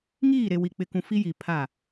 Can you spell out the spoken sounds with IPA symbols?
ŋiː˦˨ ɾe˨ wi˨k͡pɪ˨kũ˨ fi˦ ji˨ pʰa˦˨

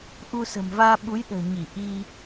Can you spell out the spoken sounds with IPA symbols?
ʔu˧sə̤˨˩mvaː˧ ɓu˨˦jɗə̤ː˨˩ ɲi˧˩ʔi˧

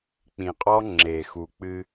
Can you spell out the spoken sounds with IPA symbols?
k͡pĩ˨qʼɔ˦ ŋ͡ǁe˨xu˨ k͡pɨ˦

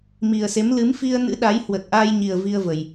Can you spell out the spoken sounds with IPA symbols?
mi˨˩ə̯se˨˦m lɨ˨˦mfi˧ə̯nɨ̰˧˥ ɗa˨˦jhwə˨˩t̚ʔa˧jɲi˨˩ə̯ vi˧ə̯və˨˩j

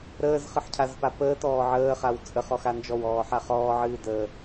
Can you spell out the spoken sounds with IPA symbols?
ɾəːzχɨħcʰazpa pəːtɔː ʕəːχaw t͡sʼəχɔxa nd͡ʒɔwɔːħa χɔːʕɨː dəː

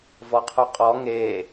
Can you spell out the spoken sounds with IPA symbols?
vɔqʰoqʼɔ ŋeː

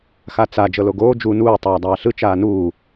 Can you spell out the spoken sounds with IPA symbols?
xat͡sa d͡ʒɤloɡoː d͡ʒu nuː tˤaːdˤaːɬɯ t͡ʃaːnuː

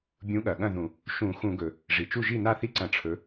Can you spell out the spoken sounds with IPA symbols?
bʲũ˨˥ɠɐ˩ɠɐ̃˥˩ ðũ˧˩˧ | ʃũ˧˩˧ xũ˧˩˧ɡɵ˩ | ʐi˩t͡ʃu˥˩ ʒi˥˩na˥˩θi˥˩ǀɐ̃˧˩˧ ʈ͡ʂʰɵ˨˥

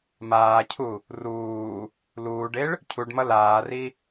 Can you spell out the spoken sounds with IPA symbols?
maːcʰu | ruː | luːɖeɭ | cʰuɖmʌ laːri

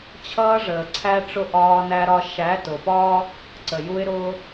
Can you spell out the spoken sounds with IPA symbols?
t͡ɕʰʌː˦ʐəː˨ǀʰæ˦ʈ͡ʂʊ˦ ʔɒː˦næ˦ɾɒ˦ ʃæ˨˦tʊ˨pɒː˦ | ǀə˨ju˦ɪ̯ ɾʊː˦

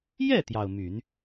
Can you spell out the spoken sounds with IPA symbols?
jɛ˥˩t̪jɑ˩ʊ̯ my˨˩˦n

